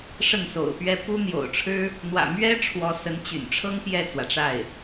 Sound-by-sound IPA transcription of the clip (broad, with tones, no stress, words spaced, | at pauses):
ʂə˥˩nso̰˨˩ʊ̯pɥɛ˥˩ pu˥n̪jo̰˨˩ʊ̯ʈ͡ʂʰɻ̩˥ | n̪wä̰˨˩mɥɛ˥ ʈ͡ʂʰwɔ˧˥sə˧˥nt͡ɕy̰˨˩nʈ͡ʂʰɤ˥ŋ pjɛ˥˩t͡swä˩ʈ͡ʂa˥˩ɪ̯